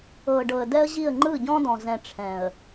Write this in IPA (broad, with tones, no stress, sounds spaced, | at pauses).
ɤ˨ ɖ ɤ˨ ə̯ d ɛ˦ ə̯ ʑ i˦˨ ə̯ ŋ͡ǃ ɯ˦˨ ɟ ɔ̃˦ d ɔ̃˨ z ɛ̃˨ ʈ͡ʂʰ ɛ̃˨ ə̯